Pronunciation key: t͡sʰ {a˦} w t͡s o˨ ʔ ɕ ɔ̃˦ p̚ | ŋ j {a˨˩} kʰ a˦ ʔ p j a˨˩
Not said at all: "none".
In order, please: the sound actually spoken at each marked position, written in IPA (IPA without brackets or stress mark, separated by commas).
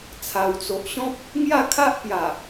a˨˩, a˥˧